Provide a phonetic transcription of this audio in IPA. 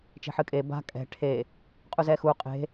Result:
t͡ʃ e̤ ħ ɨ kʼ e b a̤ kʼ ɛ̤ ʈʰ e | qʼ u z ɛ x u qʼ e̤

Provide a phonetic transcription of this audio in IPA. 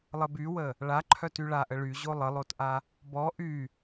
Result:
lˠ ə b y w ə | ɭ a ǃʰ œ t y ɭ a ʔ ə ɭ y ʑ o lˠ ə lˠ o t ʔ a | b ɔ ʔ y

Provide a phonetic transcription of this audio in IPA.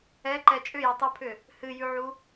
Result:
ɛ ǃ ɛ t͡ʃʼ ʏ j ʉ tˤ u pʰ ʏ | h ɨ j ʉ ʕ u

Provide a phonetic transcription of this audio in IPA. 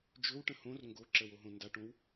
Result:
d͡ʒ ɵ w ʈ ə̃ h õ r ŋ ɡ o ǁ ə w o ɦ õ n d a ʈ õ w

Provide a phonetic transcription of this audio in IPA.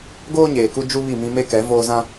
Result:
ɡ oː˦ ɲ eː˨ k u˦ d͡ʒ u˦ β i˦˨ m ĩ˦ m e˦ k ɛ˨˦ v oː˦ z ã˦

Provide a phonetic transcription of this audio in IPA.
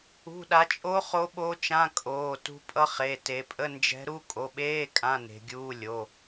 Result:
ṳ˩˧˩ ɗ a˩˧ t͡ʃʼ o˧˥ χ o˧˥ ɓ o˧˥ t͡ʃ ã˧˥˧ kʼ oː˩˧˩ t ṳ˧˥ pʼ ʌ˧˥ χ e˩˧˩ t e˩˧ pʼ ə˧˥˧ n d͡ʒ ɛ̤˧˥ ɾ u˧˥˧ kʼ o˩˧˩ ɓ eː˧˥˧ kʼ ã˧˥˧ n e̤˩˧ ɡʲ uː˧˥˧ lʲ o˩˧˩

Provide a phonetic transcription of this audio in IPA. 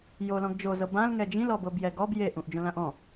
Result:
j o l ɔ̃ ɡ d͡ʒ o z ɤ b ã l ŋ ɛ d͡ʒ ĩ l ɔ b ɤ b j ɛ ɡ ɔ b j e ʔ ũ ʔ d͡ʒ õ l ã ʔ ɔ̃

